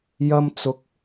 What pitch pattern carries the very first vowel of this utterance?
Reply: high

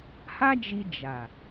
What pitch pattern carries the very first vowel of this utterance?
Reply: high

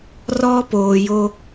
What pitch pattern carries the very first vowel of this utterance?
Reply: high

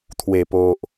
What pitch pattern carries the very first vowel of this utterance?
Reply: low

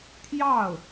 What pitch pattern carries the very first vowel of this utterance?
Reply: falling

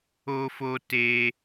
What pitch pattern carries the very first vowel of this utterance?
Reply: high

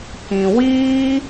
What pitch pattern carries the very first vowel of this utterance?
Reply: low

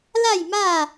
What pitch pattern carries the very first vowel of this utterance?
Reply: falling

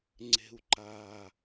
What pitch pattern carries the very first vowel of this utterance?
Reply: low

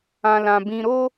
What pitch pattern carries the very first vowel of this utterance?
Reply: low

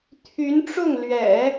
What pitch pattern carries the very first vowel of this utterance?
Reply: rising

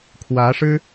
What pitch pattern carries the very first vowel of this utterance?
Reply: rising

